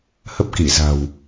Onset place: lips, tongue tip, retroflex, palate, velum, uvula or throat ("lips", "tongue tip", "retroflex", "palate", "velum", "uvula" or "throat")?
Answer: throat